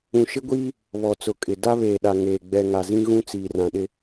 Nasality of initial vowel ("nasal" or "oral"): nasal